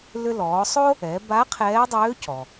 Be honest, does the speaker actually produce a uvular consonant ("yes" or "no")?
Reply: yes